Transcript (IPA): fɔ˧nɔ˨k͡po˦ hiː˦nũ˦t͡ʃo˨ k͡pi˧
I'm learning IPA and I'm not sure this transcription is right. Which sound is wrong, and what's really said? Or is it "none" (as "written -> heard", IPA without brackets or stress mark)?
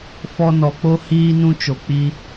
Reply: none